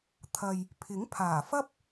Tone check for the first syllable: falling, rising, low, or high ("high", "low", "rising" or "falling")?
low